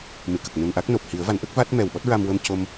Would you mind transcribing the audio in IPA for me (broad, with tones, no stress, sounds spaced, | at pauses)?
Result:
m ɨ˨˩˨ k ə˨˩ k̚ n u˨˩ n ʔ a˦˥ k̚ n o˨˩ p̚ h i˨˩˦ ə̯ v a˨˩˦ n ʔ ə˦˥ k̚ v a˦˥ t̚ m ɛ˨˩ w ɓ ɔ˦˥ t̚ ɹ a˧ m w ə˧ m c o˧ m